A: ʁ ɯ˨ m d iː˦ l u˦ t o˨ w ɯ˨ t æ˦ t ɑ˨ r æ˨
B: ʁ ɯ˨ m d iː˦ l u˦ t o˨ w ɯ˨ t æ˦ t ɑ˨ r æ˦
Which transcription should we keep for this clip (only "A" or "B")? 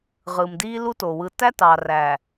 A